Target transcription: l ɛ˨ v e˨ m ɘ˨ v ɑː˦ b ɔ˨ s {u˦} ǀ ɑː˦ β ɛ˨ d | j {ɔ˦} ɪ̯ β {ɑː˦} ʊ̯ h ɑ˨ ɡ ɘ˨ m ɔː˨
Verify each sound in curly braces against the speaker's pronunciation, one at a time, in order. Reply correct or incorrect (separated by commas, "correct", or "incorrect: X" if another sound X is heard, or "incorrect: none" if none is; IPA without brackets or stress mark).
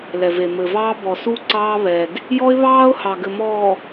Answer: correct, correct, correct